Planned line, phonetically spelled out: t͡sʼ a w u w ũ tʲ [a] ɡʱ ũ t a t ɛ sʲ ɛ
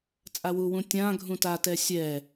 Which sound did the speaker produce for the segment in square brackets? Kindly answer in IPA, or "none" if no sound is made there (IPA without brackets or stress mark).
ã